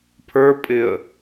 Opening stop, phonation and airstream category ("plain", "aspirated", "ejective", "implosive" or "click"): aspirated